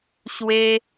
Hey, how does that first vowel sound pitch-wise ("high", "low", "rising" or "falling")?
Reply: high